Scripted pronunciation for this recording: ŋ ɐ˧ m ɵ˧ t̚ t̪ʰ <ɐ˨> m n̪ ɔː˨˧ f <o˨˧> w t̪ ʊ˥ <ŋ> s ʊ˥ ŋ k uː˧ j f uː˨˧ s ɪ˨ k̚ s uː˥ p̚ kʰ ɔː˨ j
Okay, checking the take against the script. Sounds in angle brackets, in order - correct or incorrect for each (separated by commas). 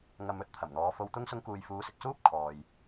incorrect, incorrect, correct